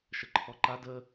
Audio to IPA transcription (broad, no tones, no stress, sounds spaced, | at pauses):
ʃ ə ǃʰ ɔ ǃ a d ə